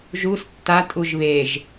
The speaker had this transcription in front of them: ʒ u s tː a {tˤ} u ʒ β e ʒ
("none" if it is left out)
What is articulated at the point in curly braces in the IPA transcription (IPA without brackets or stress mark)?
tʼ